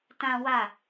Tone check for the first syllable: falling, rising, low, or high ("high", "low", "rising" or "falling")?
high